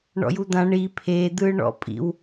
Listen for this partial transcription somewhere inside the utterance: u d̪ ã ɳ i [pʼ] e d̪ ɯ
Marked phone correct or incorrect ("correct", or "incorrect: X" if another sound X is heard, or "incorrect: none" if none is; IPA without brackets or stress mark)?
incorrect: pʰ